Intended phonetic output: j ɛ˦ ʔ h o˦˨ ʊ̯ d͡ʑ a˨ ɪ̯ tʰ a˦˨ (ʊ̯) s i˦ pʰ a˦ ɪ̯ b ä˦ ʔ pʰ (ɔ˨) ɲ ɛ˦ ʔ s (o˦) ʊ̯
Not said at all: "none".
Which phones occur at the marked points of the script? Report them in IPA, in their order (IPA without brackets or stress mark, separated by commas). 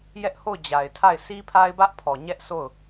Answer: ɪ̯, ɔ˨, o˦˨